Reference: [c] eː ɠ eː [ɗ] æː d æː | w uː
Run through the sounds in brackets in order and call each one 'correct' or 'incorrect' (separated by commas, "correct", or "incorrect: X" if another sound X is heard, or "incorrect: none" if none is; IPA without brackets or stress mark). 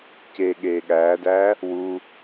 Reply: correct, incorrect: ɠ